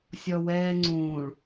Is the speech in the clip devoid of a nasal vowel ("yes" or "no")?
no